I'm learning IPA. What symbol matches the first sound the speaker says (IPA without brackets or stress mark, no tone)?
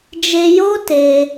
d͡ʒ